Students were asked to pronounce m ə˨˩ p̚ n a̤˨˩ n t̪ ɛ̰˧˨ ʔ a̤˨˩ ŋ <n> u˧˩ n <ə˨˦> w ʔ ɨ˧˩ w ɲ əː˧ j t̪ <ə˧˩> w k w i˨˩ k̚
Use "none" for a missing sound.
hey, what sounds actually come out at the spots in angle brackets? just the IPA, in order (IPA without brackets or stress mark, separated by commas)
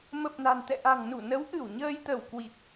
n, ə˨˦, ə˧˩